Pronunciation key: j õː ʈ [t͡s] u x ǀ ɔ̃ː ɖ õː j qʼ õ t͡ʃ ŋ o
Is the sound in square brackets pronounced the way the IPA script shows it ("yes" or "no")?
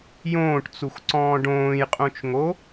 yes